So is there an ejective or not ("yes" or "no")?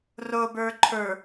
no